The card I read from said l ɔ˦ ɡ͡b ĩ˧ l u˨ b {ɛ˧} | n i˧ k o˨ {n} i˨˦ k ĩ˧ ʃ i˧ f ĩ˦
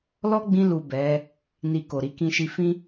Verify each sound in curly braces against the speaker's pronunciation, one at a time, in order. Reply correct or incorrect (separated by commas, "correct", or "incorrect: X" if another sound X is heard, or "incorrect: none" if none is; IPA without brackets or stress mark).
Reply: incorrect: ɛ˨˦, incorrect: ɾ